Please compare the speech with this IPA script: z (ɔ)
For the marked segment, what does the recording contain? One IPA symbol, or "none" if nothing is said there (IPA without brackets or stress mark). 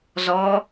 ɔ